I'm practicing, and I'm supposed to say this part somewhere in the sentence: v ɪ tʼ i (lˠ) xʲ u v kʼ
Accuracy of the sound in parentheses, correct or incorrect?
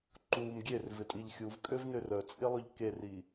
incorrect